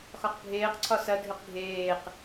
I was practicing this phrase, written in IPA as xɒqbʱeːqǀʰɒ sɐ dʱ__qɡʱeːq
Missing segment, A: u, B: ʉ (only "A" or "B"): B